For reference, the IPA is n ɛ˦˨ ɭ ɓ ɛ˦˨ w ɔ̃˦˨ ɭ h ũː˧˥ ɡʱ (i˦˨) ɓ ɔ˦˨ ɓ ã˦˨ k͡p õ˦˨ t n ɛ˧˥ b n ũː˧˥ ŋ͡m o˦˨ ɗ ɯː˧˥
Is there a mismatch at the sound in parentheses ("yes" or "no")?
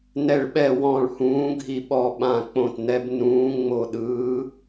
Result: no